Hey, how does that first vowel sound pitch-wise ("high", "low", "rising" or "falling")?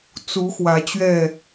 rising